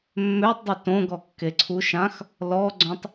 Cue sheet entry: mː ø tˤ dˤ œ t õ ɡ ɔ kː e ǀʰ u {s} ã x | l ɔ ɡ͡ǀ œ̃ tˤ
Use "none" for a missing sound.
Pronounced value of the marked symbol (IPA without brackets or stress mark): ʃ